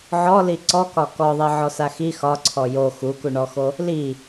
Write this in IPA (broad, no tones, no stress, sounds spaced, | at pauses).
ʕ ɔ l i ǀ ɔ k ɒ k ɔ ðˤ i ʕ ɔ s a x i x ɒ ǀʰ ɔ j o x u k u ɳ ɔ x o | l i